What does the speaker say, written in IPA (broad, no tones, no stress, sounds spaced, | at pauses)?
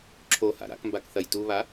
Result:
ǁʰ o h a̰ ɾ a̰ k m b a k θ ɐ j t u β a